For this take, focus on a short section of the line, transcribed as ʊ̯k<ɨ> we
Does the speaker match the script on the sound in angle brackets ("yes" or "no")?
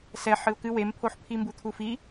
yes